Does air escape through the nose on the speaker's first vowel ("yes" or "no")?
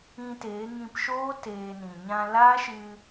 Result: yes